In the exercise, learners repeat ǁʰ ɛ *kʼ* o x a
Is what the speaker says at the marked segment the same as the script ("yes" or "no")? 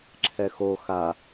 no